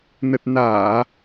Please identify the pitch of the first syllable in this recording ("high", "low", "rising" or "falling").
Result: low